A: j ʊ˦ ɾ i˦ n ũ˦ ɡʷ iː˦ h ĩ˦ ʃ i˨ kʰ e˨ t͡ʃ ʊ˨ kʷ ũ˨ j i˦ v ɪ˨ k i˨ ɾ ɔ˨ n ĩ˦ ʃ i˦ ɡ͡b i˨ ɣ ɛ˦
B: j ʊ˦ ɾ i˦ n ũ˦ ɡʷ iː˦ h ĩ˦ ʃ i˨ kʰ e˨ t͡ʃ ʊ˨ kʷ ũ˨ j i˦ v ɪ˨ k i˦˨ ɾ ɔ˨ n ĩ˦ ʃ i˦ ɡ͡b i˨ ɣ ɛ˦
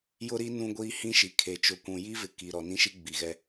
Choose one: A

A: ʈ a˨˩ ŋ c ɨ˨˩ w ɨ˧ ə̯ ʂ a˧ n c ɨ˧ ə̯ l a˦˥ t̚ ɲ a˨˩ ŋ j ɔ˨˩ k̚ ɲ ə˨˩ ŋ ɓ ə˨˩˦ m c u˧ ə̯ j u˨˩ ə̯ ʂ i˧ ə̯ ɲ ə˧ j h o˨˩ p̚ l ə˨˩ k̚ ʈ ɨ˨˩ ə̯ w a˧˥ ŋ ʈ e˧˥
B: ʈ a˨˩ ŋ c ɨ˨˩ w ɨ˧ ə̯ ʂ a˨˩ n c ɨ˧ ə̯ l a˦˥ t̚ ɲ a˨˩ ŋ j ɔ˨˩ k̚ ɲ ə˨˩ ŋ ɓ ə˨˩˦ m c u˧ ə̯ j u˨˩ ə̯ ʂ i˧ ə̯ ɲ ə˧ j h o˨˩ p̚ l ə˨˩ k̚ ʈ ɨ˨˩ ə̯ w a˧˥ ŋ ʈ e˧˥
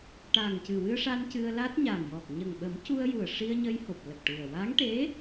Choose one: A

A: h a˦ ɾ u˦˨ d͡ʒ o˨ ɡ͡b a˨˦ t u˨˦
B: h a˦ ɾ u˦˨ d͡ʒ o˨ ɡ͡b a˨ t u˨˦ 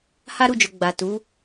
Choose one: B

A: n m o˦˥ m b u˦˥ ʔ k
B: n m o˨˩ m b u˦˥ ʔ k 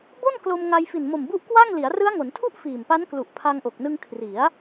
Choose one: B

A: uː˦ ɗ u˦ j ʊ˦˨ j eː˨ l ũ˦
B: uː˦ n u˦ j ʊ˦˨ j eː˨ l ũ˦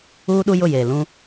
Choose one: A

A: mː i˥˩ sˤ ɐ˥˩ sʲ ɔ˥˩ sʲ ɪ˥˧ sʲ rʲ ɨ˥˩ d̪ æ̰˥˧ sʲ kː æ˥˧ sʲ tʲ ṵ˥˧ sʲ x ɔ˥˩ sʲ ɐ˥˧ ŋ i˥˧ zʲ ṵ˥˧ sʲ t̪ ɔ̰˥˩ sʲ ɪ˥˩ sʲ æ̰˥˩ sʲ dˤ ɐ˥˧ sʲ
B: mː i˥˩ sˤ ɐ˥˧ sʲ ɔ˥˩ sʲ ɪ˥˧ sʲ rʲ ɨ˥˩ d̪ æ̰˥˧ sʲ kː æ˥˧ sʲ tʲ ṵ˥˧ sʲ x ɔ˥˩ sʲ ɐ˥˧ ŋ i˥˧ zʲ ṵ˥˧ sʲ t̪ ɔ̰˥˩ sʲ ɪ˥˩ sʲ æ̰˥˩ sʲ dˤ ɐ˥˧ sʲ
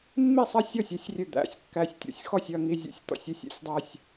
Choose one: B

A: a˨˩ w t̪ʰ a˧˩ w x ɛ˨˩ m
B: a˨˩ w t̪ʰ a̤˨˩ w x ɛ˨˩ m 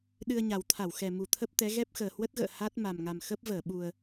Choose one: A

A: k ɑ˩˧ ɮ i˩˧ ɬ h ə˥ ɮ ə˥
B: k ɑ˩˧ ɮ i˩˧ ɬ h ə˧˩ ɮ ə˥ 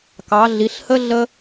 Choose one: A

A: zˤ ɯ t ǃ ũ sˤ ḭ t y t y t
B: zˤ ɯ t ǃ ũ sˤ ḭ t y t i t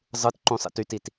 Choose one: B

